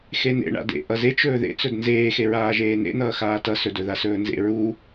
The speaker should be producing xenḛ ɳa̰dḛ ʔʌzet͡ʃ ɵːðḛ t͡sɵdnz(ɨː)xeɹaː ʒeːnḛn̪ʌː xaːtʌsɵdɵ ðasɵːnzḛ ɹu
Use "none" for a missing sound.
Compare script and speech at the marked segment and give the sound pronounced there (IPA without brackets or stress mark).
eː